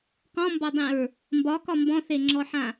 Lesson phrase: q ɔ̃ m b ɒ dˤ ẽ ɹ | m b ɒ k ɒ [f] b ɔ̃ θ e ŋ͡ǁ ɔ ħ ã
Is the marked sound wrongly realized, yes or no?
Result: yes